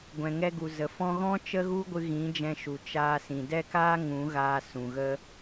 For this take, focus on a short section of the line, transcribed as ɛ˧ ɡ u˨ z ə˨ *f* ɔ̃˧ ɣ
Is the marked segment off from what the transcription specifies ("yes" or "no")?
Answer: no